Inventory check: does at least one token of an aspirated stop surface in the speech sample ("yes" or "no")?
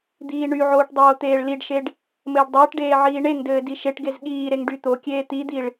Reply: no